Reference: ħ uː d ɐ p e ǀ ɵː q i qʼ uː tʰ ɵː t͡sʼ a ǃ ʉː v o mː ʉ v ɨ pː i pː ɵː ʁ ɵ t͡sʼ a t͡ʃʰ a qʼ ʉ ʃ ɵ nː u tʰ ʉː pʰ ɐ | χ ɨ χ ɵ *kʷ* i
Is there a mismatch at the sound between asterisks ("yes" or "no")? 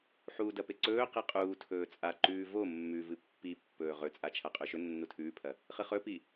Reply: yes